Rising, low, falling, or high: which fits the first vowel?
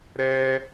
high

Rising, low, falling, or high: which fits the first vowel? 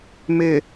low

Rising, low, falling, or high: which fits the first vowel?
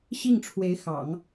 falling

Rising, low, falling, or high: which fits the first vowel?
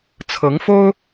rising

